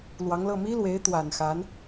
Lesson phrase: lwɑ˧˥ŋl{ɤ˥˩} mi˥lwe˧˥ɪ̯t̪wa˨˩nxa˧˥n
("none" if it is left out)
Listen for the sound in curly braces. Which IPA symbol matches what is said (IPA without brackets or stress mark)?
ɤ˥˩